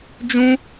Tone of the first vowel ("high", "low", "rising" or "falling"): high